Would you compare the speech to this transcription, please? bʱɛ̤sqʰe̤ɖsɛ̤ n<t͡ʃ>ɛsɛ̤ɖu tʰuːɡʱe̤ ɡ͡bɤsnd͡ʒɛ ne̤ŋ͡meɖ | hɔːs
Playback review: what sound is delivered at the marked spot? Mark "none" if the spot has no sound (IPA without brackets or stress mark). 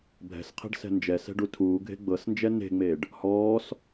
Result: d͡ʒ